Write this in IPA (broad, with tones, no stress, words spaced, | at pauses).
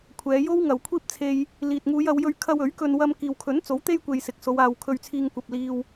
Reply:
kʷʰɛː˨˧jo˥wŋɐ˨w kʷʰiː˥p̚t͡sʰe˧j | liː˨t̚ŋuː˨˧jɐ˨˧wjɵ˧ɥ kʰɐ˧w ɵ˨˥ɥkɵ˧n wɐ˧m kiː˨wkʰɵ˨˥nt͡so˨˥w t̪e˥jkʷe˨j sɪ˨˥k̚so˨˧w aː˨w kʰɵ˧ɥt͡sʰiː˧ŋkʷɐ˨p̚liː˧w